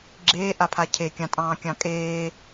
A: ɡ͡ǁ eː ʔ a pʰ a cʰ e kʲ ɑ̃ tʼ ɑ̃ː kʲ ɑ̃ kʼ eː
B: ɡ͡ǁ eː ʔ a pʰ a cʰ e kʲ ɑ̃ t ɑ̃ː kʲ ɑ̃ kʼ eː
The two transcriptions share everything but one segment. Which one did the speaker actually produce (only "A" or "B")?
A